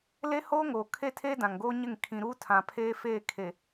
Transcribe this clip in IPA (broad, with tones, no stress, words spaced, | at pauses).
le˦hoː˦ŋoː˨ kʰe˦˨tʰeː˦ dã˨ŋɡoː˦ɲɪ˦˨ŋ kʰĩ˨ɾuː˦tʰã˨ pʰeː˦fe˦˨kʰe˨